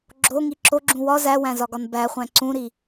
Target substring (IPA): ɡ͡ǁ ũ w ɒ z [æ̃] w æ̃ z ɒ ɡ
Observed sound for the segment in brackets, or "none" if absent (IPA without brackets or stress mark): æ